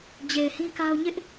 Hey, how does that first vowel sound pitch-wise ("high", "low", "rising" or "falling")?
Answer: low